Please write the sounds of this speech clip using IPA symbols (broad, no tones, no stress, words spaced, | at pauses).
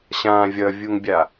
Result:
ɕã vʲʌvʲuŋbʲa